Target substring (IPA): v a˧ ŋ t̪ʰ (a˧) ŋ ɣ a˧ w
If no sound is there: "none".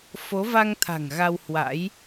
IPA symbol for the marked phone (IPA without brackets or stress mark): a̤˨˩